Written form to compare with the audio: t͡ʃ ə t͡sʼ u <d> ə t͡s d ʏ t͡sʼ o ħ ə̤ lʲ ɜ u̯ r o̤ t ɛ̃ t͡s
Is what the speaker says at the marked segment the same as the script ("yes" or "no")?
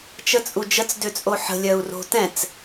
no